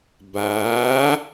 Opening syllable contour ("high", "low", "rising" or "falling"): rising